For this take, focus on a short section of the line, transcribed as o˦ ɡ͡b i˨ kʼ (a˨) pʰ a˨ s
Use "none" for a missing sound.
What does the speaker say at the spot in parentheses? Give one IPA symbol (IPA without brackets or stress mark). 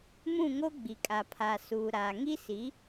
a˨